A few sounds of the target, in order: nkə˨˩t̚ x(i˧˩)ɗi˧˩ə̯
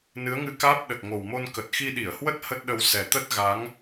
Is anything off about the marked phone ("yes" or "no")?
yes